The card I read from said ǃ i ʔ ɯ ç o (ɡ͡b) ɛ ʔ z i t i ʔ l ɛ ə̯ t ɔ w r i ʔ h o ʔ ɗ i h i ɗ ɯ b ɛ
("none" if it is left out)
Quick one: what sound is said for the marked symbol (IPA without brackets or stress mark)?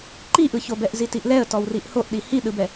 b